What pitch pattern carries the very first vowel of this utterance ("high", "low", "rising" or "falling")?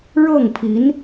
falling